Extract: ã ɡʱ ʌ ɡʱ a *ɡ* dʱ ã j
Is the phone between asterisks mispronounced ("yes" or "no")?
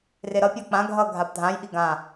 yes